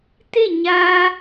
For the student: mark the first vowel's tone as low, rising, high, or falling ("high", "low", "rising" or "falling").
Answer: falling